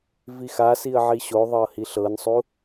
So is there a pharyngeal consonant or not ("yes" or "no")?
yes